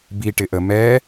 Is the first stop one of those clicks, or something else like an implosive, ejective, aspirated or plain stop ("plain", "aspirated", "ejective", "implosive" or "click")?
plain